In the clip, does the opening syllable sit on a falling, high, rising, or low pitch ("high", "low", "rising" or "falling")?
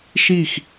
falling